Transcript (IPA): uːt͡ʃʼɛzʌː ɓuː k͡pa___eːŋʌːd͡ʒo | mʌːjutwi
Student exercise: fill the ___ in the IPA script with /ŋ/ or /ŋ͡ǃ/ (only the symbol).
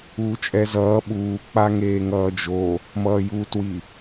ŋ